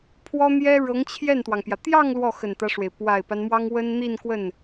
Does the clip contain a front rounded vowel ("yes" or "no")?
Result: no